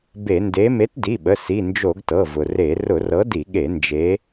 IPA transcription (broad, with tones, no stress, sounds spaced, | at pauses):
b e˧˩˧ n d e˨˥ m e˨˥ t d i˩˧˩ ɓ ə˩˧˩ s i˩˧˩ n d͡ʒ o˧˩˧ ɡ t ɤ˩˧˩ v ʊ˩ r e˧˩˧ r ʊ˧˩˧ r ɤ˨˥ d i˧˩˧ ɠ e˧˩˧ n d͡ʒ e˨˥